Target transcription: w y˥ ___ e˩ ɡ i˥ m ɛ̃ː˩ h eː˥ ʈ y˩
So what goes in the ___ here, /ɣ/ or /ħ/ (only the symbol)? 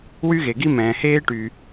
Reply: ɣ